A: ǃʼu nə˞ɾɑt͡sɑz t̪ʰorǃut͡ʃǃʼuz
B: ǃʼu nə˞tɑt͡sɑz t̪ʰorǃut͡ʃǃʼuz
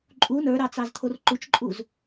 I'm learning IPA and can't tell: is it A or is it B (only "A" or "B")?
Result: A